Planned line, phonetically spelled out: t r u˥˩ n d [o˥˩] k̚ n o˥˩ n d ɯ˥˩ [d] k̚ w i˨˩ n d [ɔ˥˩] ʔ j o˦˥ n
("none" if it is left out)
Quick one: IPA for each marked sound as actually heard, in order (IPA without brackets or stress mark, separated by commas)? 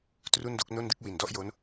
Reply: o˦˥, none, ɔ˥˩